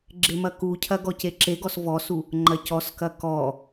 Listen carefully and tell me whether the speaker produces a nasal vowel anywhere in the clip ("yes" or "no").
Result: no